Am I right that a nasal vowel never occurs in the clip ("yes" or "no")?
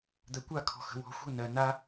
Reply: yes